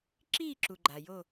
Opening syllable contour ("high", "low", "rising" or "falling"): falling